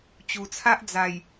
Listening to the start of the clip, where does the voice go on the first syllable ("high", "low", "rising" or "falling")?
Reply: low